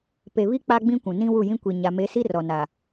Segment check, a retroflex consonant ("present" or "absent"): absent